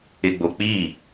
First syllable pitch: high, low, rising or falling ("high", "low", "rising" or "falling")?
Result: low